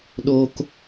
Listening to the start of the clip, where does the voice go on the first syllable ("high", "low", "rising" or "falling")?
high